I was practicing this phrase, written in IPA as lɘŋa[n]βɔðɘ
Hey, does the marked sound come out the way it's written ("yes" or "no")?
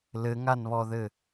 yes